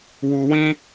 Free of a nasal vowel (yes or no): no